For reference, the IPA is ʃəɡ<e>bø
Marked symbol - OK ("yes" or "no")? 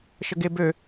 yes